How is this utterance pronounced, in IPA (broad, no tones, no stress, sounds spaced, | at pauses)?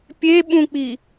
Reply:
pʲ e ɓ ũ k͡p i